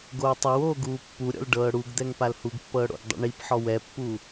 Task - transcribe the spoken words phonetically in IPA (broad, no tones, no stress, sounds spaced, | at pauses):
ɡ oː tˤ a w oː ɡ uː pː u ɾʲ ɔ̰ l ɖ ɤː ɽ u ɡ d̪ ɛ ŋ p a l h u ɡ pː ɤː ɽ o̰ ɡ dˤ ṵ ɳ i p ħ ɔ w ɛ pː u